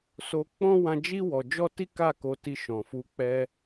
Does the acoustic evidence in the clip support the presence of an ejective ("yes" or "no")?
no